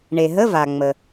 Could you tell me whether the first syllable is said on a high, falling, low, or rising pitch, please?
low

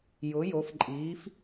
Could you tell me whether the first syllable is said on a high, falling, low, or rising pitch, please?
rising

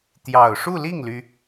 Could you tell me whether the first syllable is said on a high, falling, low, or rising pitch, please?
low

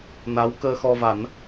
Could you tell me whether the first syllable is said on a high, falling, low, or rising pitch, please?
rising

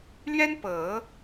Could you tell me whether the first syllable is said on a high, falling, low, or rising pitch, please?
high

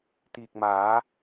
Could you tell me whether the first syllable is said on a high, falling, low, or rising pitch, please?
low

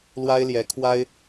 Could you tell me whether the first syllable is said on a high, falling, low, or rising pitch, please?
high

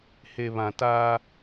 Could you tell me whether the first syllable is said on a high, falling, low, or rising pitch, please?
low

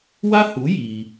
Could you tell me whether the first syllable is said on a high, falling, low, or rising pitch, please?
high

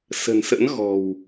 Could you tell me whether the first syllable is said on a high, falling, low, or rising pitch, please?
low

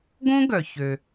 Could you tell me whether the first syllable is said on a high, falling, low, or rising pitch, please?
high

